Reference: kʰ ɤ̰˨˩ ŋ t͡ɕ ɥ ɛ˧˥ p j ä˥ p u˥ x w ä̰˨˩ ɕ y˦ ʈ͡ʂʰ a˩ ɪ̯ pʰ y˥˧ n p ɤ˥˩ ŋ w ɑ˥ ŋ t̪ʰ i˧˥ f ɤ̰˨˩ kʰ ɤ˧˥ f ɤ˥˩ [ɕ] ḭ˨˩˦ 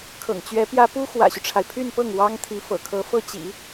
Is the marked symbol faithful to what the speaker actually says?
no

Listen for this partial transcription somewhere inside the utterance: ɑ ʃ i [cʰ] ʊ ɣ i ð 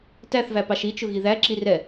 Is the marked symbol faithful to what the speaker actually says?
no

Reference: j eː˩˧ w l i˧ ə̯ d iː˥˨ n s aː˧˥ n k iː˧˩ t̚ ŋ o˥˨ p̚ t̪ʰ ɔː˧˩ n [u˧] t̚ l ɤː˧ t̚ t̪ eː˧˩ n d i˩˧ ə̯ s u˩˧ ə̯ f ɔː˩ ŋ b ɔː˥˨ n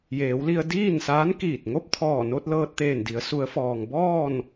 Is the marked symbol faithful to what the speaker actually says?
no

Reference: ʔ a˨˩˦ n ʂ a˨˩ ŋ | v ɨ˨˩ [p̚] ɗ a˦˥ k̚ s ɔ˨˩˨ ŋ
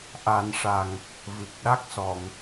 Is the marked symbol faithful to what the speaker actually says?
no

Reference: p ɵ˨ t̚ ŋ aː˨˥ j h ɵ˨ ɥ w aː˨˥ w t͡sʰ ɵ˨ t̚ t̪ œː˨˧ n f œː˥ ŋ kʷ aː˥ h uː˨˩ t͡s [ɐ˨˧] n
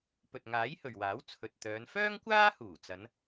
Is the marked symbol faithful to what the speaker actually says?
yes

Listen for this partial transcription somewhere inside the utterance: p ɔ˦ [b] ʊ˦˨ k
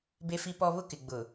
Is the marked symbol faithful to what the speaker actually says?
no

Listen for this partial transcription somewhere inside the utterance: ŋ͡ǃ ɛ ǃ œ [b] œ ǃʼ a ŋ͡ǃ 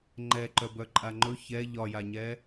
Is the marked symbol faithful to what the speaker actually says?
yes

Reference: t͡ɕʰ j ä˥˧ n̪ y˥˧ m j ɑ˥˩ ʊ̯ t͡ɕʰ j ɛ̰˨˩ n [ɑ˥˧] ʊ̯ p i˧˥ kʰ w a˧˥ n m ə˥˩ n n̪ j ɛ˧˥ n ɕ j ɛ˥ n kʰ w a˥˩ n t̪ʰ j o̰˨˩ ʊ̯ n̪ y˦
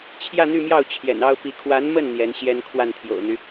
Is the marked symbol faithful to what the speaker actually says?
no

